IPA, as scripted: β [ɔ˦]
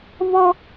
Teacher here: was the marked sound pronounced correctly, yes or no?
yes